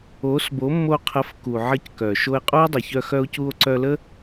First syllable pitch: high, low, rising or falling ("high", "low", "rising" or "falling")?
rising